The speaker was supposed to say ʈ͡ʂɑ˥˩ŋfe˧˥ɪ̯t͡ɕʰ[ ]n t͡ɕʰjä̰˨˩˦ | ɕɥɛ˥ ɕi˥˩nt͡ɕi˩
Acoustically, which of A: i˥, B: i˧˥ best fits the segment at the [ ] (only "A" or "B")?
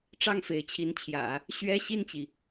B